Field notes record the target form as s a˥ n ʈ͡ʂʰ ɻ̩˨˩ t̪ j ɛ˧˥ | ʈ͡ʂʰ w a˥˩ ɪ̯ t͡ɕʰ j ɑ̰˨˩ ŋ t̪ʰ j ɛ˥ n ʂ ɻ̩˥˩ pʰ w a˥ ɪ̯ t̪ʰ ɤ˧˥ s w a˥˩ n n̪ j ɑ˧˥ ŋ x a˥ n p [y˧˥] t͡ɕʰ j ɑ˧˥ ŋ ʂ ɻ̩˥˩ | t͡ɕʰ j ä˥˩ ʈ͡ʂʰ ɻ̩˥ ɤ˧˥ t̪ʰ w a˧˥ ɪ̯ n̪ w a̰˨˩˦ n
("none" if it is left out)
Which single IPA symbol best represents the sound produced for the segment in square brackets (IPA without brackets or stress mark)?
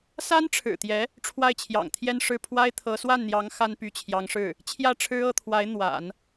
y˧˥